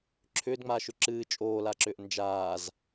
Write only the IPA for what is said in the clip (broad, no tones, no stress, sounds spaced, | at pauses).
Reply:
ǁʰ ʏː d ŋ͡m aː ʃ ʏ ǁ ɨː t͡ʃʼ oː l a ǁ ʏː ʔ n d͡ʒ aː z